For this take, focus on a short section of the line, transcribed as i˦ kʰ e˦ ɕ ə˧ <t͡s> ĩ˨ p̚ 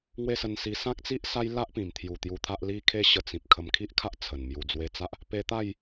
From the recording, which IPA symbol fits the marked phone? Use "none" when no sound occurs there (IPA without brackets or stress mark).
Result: t͡s